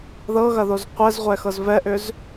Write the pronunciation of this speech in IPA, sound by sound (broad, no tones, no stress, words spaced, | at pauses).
ðɤɣɐðoz qʷɛzʁʷɛxɤz vɛʔʏz